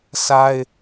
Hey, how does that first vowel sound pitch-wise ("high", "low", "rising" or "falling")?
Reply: high